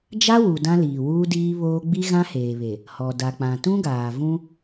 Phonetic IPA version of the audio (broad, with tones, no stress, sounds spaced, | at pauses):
d͡ʒ a˦ w u˨ d ã˦ l iː˨ w uː˦ d iː˦ β oː˦ ɡ͡b i˦ ɣ ã˦ h eː˨ β e˨ | h ɔ˨ d a˨ k͡p ã˨ t ũ˦ ɡ aː˨ v ũ˦